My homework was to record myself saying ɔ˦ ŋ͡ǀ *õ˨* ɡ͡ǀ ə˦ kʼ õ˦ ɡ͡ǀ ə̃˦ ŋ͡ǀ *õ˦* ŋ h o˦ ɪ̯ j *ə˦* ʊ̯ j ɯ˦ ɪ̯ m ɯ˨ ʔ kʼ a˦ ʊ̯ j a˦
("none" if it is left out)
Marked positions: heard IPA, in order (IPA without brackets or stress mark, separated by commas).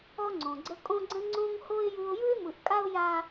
õ˨, õ˦, ɯ˦